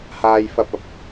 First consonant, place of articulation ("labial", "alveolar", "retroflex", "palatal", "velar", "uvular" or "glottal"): glottal